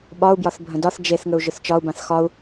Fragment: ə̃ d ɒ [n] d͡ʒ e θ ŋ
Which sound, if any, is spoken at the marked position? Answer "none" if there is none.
θ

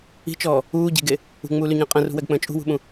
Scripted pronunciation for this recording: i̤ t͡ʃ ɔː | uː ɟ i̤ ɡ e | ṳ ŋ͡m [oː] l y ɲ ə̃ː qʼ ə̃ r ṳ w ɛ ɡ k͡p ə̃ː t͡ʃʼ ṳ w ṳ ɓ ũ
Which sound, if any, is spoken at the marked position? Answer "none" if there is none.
uː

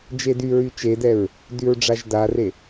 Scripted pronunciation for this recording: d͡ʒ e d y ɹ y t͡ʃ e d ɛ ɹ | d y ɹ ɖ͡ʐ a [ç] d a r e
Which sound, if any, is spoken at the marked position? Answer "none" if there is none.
ʒ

